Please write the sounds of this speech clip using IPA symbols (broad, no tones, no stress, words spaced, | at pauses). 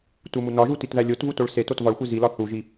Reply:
tumunɒʒu titðælʲotvu toɭsetot vɒɭxʷe zilɒ θuʒi